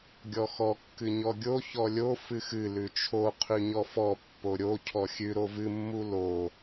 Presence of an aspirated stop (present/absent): present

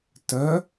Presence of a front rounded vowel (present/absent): present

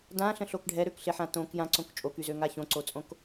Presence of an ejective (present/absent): present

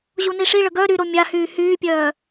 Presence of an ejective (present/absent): absent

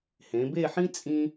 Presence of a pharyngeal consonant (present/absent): present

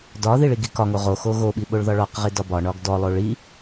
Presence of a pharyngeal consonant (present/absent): absent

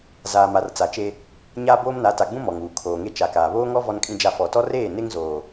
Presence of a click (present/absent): absent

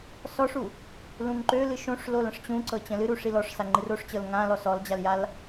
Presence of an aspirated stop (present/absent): absent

